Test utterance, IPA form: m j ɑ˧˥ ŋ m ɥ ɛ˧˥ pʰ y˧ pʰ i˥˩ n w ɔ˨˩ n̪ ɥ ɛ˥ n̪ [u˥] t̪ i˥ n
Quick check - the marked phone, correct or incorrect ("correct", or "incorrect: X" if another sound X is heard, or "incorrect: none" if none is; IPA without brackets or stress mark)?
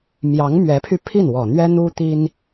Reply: correct